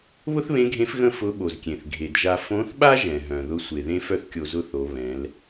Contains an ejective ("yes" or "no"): no